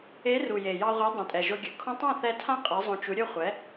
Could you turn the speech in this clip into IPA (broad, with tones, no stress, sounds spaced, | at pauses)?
e˨˥ r u˨˩ j e˨˩ j ɑ˧ ʁʷ e˨˥ dˤ õ˨˩ tʼ ɛ˨˩ ʒ o˧ ɡʲ ə˨˩ kʰ õ˧ tˤ ã˥˩ θ ɛ˧ tʰ ã˥˩ qʼ e˨˥ zˤ õ˧ t͡ʃ u˨˥ ɾʲ ɵ˥˩ χʷ ɛ˨˥